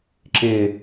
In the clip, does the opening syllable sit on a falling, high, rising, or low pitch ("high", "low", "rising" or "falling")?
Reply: falling